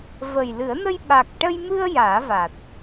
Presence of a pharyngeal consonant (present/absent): absent